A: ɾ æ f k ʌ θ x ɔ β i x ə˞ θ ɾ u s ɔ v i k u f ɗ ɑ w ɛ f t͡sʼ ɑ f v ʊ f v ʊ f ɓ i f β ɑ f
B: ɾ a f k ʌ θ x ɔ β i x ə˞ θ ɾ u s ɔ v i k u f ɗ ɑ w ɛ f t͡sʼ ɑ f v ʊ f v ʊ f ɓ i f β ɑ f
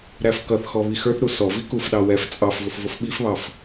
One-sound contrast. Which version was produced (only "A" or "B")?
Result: A